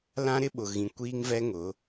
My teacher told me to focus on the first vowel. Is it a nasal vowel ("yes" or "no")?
yes